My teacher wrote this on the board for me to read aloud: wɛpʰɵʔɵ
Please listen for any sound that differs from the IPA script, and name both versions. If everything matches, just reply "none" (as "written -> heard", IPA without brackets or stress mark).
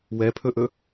none